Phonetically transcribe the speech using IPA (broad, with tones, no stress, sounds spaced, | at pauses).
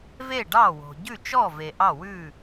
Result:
v e˥˨ ɖ ɑ˥˨ w o̤˨ ɟ ʉ˥˨ t͡ʃ ɔ˥˨ v e˨ ʔ ɑ˥˨ w ʉ˥˨